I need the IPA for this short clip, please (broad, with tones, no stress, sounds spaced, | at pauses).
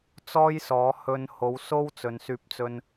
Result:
t͡s ɔː˥ j s ɔː˨˥ h ɵ˧ n h o˨˥ w s o˥ w t͡s ɵ˨ n s yː˧ p̚ t͡s ɵ˧ n